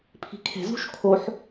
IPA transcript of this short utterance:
pʰ i̤ kʰ e̤ z ṳ ʃ kʰ o ħ

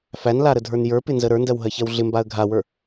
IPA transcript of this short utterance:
f æ n l a ɾ ə dʱ ə˞ n j ə˞ p ɪ n z ə ɾ ə˞ n d ɜ w ɦ ɜ ç ɜ w ɮ ɪ m b a ə̯ ɡʱ a w ə˞

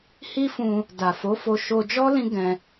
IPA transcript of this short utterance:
h i˦ f ũ˧ | d a˨ f o˨˦ f o˧ ʃ o˧ d͡ʒ ɔ˦ l ĩ˦ ɡ ɛ̃˧

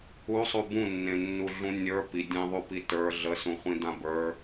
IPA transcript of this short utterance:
u sˤ u b ũ nː ẽ nː u ɮ ũ nʲ ə˞ p i dʲ ẽ ðˤ u p i t ə˞ ɮ ə s ũ χʷ ĩ d̪ ã b ə˞

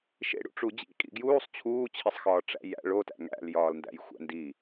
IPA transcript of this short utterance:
ʃ ḛ ɽ ṵ ʈ͡ʂ u d͡ʑ ḭ kʼ ḭ ɡ j uː sˤ t͡ɕʰ uː t͡ɕʰ i sˤ x ɒː ʈ͡ʂ æ̰ j æ̰ ɭ o t æ̰ ŋ æ̰ l j ɒː l n d æ̰ j xʷ æ̰ n d i

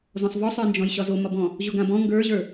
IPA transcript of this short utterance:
z ɔ̃ sˤ v ɔ sˤ ə˞ n d͡ʒ ɔ̃ j ɕ ɒ z o m ɒ b ɔ̃ | ʑ o ɡ ã b ɔ̃ ŋ ɡ ə˞ ʑ ə˞

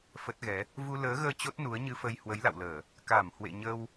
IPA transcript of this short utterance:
f ə˦˥ t̚ ɣ ɛ˨˦ | v u˧ l əː˨˦ ɣ əː˧ t͡ɕ o˦˥ t̚ n u˨˦ ə̯ ɲ ɨ˧ f ə˧ j h w ə˨˦ j l a̰˧˨ w l əː˧˩˨ | k a˧˩ m h w ḛ˧˨ ɲ ə˧ w

